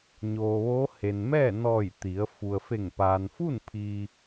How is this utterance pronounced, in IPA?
ɲ oː˩ ʋ oː˧˥ h e˩ n m ɛː˥˨ n ɔː˧˩ j t̪ i˩˧ ə̯ f u˩ ə̯ f e˧˩ ŋ p aː˩ n f u˥˨ n pʰ iː˧

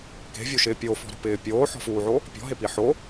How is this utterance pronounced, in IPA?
k e̤ vʲ u ʃ ɪː pʲ o f ɔ̤ ɾ ṳ p ɪː pʲ oː ħ ɔ̤ f uː ʕ o | pʲ ɔ̤ ɦ e p i ħ o

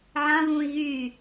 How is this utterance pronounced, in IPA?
ʕ ã β ũː i̯ ɣ yː

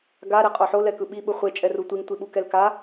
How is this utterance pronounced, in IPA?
ɡ a ɾ e qʼ o ħ o l ɛ k ɯ ɓ i ɓ ɯ χʷ e t͡ʃʼ ɛ r u tʷ i ŋ tʷ i ɓ u k ɛ l k a

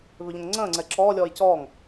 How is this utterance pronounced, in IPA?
β ʏ ʎ ə̃ ŋ ŋ͡ǀ ə̃ː ŋ͡ǀ ɛ ǁ ɔː lʲ ɔː j c ɔː ŋ

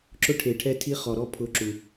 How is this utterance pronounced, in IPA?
ǁ ʊ˦ ʈʰ e˨ ʈʰ ɛ˦ tʰ i˦ χ ɔ˨ ɾ ɔ˦ pʰ ʊ˨˦ ǁ u˨

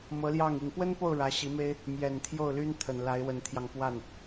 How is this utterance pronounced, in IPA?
m ɤ˧˥ l j ɑ˥˩ ŋ i˨˩ ŋ p w ə˥ n p o˥˩ ʊ̯ ɻ ä˧˥ ɕ i˧˥ m e˥ ɪ̯ | m j ɛ˨˩ n t̪ʰ j o˥˩ ʊ̯ l y˥ n t̪ʰ ə˨˩ n l a˧˥ ɪ̯ w ə˧˥ n t̪ʰ j ɑ˧ ŋ p w a˥˩ n

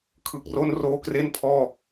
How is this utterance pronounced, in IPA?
kʰ ɯ˨˩ k̚ r o˦˥ n r oː˧ k r e˥˩ n pʰ ɔː˥˩

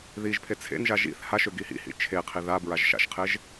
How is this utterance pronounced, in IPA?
ð i ʒ pʰ e t͡sʰ ḛ n ʒ a ʒ ḭ θ h a ʃ ø ɡ i h ḭ h ḭ t͡ʃʰ e qʰ i ð a b ɹ a ʒ ʃ a̰ ʃ qʰ e ʒ

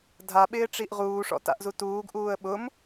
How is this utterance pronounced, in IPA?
dʱ a ɓ ɪː ʈ͡ʂ i ʔ ʁ uː ʂ ɔ̰ t a̰ ʔ z u t uː ɡ ʔ uː ə̯ ɓ ʊ m

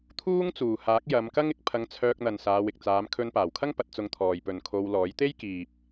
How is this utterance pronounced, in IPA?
t̪ʰ uː˥ ŋ t͡s uː˨˩ h aː˨˥ k̚ j ɐ˨˧ m k ɐ˥ ŋ ɪ˨˥ k̚ pʰ ɐ˧ ŋ t͡sʰ œː˧ k̚ n̪ ɐ˨ n s aː˨˧ w ɪ˨ k̚ t͡s aː˨˧ m kʰ ɵ˧ n p aː˨˩ w kʰ ɐ˥ ŋ p ɐ˨˥ t̚ t͡s ʊ˧ ŋ t̪ʰ ɔː˨ j p ɵ˨ n kʰ o˧ w l ɔː˨˥ j t̪ e˥ j k iː˨ p̚

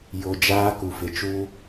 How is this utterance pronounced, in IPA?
j o˨ d͡ʒ aː˦ k u˨ f ɪ˨ t͡ʃ uː˦

